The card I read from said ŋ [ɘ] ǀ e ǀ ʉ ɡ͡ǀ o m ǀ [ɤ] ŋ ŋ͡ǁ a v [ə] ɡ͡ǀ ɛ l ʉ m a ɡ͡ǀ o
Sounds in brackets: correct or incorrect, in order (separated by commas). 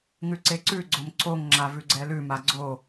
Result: incorrect, incorrect, incorrect